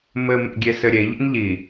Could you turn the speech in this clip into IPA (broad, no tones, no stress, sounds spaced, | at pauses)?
m ɘ m ḛ ɡʲ e s ɘ ɾʲ e ʎ ḛ n ʎ i